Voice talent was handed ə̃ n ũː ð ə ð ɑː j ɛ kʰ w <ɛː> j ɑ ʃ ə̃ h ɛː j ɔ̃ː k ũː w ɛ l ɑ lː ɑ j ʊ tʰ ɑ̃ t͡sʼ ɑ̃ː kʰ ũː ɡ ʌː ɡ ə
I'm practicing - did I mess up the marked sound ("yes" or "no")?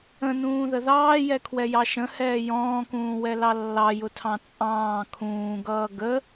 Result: yes